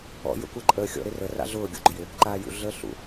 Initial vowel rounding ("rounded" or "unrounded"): rounded